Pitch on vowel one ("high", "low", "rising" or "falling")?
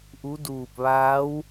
rising